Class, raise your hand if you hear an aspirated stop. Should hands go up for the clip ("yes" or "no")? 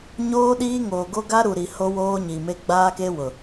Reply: no